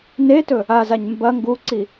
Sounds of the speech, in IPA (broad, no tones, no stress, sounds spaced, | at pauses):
n e t ɵ | a z a ɲ m b ɐ ŋ ɡ u ǀ i